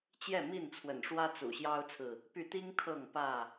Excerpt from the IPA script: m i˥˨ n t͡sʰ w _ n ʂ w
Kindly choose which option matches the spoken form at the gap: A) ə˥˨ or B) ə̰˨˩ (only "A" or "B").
B